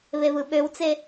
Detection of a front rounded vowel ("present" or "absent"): present